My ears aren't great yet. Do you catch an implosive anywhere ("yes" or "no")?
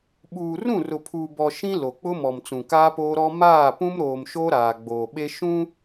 yes